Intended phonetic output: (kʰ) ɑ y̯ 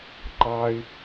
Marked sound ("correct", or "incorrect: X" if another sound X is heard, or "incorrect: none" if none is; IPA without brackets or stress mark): incorrect: ǃ